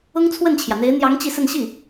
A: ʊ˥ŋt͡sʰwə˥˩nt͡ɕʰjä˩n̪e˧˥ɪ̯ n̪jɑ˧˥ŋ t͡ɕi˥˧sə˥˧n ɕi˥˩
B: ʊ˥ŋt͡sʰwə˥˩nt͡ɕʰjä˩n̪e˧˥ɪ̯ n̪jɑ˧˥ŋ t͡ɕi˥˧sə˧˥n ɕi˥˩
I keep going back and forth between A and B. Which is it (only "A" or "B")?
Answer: A